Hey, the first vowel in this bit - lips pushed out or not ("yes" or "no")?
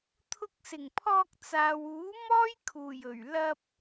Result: yes